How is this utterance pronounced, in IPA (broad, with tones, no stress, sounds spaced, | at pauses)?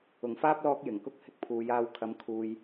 ʊ˨˩ ŋ f aː˥ p̚ l ɔː˧ k̚ j ɪ˨˩ ŋ k ʊ˥ k̚ h ɪ˥ k̚ pʰ uː˨˧ j aː˧ w kʰ ɐ˨˧ m kʰ uː˨ j